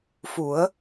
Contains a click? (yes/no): no